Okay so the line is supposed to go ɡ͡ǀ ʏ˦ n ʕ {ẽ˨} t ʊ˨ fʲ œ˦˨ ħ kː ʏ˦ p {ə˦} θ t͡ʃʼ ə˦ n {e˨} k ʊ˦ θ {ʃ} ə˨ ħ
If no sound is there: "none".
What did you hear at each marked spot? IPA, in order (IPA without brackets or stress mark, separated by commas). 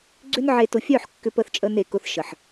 e˨, ə˦, e˨, ʃ